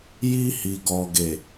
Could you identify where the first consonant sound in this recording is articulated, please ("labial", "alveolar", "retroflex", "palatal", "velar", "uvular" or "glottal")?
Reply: palatal